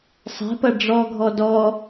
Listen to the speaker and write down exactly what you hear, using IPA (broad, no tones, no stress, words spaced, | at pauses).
sˤɛ̤pɐ ɖ͡ʐɔɡʱɔ dɔ